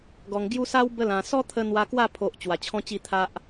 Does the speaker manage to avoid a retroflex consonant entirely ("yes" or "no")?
yes